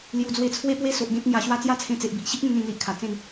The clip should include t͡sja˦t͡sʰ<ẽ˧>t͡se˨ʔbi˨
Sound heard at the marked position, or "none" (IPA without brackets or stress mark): ẽ˧